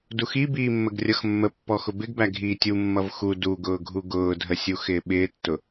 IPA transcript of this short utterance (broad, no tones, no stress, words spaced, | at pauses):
duxi biːmːəɡrʲʌxmːə pːɔxʊbɪɡbæ ɡʱiːtʲu mːʌvxu duɡʊːɡʱu ɡʊːdʱəsʲuxɪː ɓɪːtːʊ